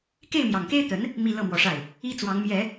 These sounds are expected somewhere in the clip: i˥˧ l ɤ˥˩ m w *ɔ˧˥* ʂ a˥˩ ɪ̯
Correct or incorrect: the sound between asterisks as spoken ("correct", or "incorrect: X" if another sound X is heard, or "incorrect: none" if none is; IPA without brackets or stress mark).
correct